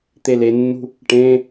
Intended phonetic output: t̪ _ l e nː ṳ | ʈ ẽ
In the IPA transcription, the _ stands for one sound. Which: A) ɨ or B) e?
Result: B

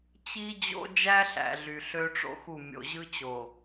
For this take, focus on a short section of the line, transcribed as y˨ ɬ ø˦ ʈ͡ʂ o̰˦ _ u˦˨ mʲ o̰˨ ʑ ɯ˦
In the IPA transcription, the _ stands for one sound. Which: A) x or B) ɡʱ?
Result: A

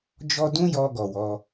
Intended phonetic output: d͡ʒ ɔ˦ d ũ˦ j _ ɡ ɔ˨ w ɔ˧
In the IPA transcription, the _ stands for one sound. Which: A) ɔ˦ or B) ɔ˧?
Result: B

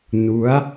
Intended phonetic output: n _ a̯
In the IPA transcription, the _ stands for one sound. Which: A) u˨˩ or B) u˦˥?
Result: B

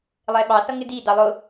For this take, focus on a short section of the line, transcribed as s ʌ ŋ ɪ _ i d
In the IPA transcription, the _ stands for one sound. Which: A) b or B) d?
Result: B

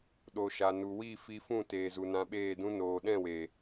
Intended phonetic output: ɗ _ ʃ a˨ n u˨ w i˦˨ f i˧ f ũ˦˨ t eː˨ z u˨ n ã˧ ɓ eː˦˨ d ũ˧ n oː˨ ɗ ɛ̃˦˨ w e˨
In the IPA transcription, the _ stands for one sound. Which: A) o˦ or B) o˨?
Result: B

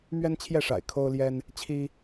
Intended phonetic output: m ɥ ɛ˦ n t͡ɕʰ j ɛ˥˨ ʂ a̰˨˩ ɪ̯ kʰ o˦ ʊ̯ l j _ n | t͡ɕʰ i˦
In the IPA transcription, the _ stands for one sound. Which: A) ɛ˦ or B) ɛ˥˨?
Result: A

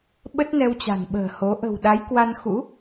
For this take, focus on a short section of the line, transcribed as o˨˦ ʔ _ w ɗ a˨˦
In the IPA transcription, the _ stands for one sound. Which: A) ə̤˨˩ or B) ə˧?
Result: A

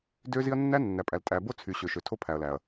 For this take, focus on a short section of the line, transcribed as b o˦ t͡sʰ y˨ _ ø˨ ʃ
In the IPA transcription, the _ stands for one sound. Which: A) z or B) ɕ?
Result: B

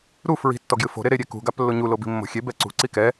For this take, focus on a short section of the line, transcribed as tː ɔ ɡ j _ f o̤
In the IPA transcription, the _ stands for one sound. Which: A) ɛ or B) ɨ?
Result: B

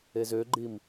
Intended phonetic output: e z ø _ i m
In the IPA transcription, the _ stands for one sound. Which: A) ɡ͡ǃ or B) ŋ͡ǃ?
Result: A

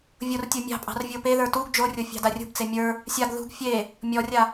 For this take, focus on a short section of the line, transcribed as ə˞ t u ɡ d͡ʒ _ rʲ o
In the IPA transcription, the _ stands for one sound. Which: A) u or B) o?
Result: B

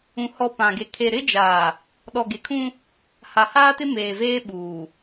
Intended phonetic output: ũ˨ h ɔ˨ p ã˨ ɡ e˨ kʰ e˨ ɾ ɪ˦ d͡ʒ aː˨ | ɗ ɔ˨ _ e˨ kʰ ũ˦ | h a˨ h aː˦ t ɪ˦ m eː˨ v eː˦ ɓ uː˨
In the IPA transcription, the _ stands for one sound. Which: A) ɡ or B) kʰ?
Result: A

